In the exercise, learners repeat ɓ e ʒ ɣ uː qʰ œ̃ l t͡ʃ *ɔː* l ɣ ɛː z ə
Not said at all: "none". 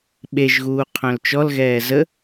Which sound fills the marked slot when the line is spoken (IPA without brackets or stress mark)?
ɔ